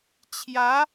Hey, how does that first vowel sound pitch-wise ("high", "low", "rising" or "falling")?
rising